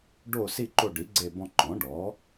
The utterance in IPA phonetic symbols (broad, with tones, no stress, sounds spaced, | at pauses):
ɖ o˦˨ s i˦˨ ǃ o˦˨ ɖ i˩˥ ɡ͡ǀ e˦˨ b ɔ̃˦˨ ǃ ɔ̃˩˥ ɖ ɔ˩˥